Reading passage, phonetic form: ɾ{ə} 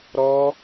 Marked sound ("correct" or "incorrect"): incorrect